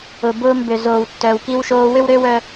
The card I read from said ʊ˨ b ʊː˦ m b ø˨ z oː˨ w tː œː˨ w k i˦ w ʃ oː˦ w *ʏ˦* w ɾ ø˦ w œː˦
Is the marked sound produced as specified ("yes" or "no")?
yes